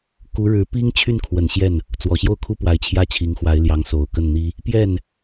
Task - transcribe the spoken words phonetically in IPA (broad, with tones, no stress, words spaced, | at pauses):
ku˧˥ɻɻ̩˧˥pi˥ŋ t͡ɕʰy˥˩nkʰwə˨˩n ɕjɛ˥˩n | t͡swɔ˨˩ɕjo˥˩ʊ̯kʰu˥ pwa˧˥ɪ̯t͡ɕʰjä˥˩t͡ɕʰi˧˥ŋxwa˧˥ɪ̯ ljɑ˧˥ŋso˨˩ʊ̯kə˥˩nn̪i˥ | pjɛ˥˩n